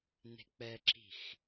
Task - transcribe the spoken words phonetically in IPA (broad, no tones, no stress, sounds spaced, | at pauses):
n e̤ k͡p ɛ ǁ i̤ x